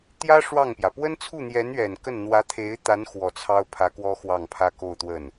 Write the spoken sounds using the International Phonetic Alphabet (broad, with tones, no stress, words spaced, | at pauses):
t̪jä˥ ʂwɑ˥˩ŋpjä˩ pwə˥nt͡sʰu˥˩n̪jɛ˧˥nɥɛ˨˩n kə˥˩n n̪wä˧˥t̪ʰe˧˥ɪ̯t̪a˧˥n xwɔ˨˩t͡sʰɑ˥ʊ̯pʰä˧˥kwɔ˥ xwɑ˥˩ŋpʰä˥ ko˥˧ʊ̯t̪wə˥˩n